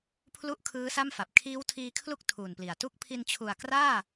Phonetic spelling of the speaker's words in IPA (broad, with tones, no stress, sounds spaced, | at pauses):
pʰ l u˥˩ ʔ kʰ ɯː˦˥ s a˥˩ m f a˨˩ p̚ kʰ iː˦˥ w tʰ iː˧ kʰ l u˥˩ k̚ tʰ uː˨˩ n p l i˨˩ a̯ t u˦˥ k̚ pʰ i˧ n t͡ɕʰ u˨˩ a̯ k r aː˥˩